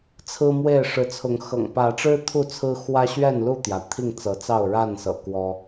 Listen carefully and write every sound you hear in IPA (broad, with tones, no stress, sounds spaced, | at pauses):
t͡sʰ ɹ̩˦ m w e˥˨ ɪ̯ ʂ ɻ̩˨˦ t͡sʰ ʊ˨˦ ŋ x ɤ̰˨˩ ŋ p ä˨˦ ʈ͡ʂ ɻ̩˦ t̪ʰ u˥˨ t͡sʰ ɹ̩˦ x w ä˦ ɕ ɥ ɛ˥˨ n l u˥˨ t̪ j ä˩ t̪ʰ i˥˨ ŋ t͡s ɤ˨˦ t͡s ɑ˥˨ ʊ̯ ɻ a˥˨ n s ɤ̰˨˩ k w ɔ˦